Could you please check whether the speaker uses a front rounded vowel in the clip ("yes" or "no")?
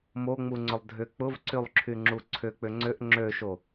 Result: yes